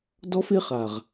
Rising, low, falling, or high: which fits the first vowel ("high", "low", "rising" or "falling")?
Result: high